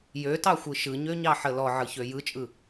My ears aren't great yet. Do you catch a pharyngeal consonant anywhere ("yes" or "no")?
yes